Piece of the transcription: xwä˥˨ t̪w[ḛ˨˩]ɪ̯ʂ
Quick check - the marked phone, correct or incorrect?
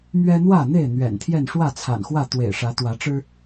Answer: correct